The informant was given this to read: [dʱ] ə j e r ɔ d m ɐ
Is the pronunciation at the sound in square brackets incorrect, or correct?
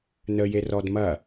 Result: incorrect